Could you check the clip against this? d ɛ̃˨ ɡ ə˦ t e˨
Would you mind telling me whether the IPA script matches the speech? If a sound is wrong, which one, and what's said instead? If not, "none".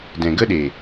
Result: t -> ɗ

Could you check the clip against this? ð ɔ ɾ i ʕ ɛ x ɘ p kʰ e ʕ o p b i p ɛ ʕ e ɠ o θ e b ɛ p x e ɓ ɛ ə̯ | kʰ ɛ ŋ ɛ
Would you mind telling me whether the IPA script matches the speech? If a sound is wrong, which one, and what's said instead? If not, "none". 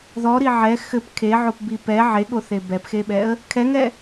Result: none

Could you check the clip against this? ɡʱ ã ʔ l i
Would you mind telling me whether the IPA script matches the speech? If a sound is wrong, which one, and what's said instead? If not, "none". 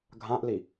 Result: none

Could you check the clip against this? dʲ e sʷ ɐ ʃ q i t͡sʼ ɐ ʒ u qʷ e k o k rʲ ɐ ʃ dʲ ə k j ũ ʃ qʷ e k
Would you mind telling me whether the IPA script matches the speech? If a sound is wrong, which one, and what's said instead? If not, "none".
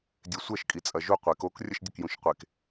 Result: q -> kʼ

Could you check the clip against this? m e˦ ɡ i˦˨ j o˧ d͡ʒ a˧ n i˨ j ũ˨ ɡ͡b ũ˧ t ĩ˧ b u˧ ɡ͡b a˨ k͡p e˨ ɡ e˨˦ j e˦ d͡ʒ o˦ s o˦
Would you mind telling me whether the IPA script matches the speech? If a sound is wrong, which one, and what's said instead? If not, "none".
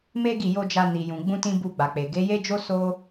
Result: none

